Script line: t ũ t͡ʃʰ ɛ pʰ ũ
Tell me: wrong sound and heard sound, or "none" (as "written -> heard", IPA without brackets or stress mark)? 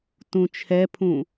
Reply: none